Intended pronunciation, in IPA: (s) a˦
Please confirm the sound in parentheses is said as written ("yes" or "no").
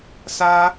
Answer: yes